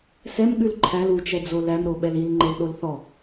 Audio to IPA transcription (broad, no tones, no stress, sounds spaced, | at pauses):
s ɛ m ɠ ʉ l ǃʰ æ l u t͡ʃ ɛ d͡z o l æ m ɾ o ɓ ɛ l i l ŋ͡ǃ e l ɗ o l θ ɔ